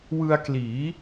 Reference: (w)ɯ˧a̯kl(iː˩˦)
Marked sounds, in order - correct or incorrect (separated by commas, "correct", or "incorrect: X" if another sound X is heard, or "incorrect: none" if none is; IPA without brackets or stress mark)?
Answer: correct, correct